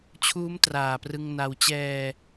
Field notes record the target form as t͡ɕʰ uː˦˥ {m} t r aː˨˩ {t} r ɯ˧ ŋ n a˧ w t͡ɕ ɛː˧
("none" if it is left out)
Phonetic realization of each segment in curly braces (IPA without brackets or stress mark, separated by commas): m, p